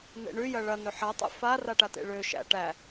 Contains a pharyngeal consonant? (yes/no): yes